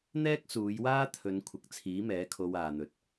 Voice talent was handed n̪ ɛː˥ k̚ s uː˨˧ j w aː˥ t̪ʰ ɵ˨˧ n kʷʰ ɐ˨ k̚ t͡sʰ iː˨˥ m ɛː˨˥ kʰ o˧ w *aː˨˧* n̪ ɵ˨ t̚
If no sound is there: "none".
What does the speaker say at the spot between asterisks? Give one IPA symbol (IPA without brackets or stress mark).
aː˨